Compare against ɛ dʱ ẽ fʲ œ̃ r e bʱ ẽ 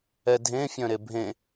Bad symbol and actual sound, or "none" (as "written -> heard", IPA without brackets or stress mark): r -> ɾ